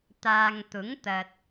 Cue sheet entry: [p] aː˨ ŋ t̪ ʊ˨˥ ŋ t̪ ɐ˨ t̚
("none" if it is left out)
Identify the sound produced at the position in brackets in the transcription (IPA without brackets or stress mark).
t̪